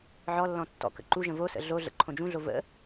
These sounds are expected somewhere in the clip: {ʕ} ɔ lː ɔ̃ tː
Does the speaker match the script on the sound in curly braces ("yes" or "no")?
yes